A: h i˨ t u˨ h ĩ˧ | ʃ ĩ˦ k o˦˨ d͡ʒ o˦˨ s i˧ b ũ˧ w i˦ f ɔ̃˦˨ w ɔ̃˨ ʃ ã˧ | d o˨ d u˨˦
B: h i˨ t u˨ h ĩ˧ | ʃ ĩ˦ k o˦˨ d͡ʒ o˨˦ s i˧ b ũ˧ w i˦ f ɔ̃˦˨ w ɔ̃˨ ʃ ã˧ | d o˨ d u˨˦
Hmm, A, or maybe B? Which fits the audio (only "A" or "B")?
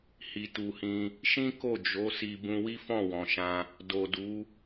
B